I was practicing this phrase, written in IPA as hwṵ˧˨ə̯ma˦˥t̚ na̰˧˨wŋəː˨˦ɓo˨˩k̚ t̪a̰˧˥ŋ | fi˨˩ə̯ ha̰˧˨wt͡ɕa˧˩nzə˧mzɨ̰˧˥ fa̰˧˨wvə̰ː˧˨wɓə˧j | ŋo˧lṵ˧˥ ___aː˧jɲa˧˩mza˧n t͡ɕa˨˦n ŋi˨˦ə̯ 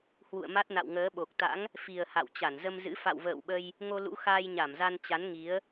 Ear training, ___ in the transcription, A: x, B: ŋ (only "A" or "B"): A